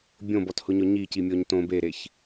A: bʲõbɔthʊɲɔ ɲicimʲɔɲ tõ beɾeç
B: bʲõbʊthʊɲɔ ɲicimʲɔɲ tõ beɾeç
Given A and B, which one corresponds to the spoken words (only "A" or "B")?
A